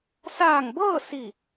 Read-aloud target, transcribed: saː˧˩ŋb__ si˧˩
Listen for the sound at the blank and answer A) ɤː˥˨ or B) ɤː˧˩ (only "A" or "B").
A